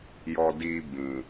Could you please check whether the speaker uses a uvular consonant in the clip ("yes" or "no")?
no